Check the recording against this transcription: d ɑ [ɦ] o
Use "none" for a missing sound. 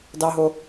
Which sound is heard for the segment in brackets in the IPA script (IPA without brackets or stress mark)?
ɦ